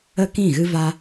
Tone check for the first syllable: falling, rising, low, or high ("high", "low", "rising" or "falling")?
high